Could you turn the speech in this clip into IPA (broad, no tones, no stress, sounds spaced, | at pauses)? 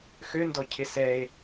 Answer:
x ø n d ɔ cʰ ɪ s ɛ e̯